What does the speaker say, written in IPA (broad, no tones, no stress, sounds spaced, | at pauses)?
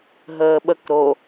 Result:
ɦ əː ɓ ə k ɾ o